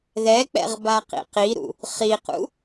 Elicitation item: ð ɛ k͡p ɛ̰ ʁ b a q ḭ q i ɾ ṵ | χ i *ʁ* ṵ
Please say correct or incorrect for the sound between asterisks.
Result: incorrect: q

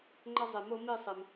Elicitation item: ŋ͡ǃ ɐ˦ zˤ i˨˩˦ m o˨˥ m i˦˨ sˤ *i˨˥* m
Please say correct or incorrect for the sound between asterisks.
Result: incorrect: i˩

